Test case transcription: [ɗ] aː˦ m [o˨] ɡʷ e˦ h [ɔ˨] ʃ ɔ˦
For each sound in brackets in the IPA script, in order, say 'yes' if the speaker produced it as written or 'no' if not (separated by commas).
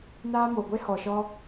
no, yes, yes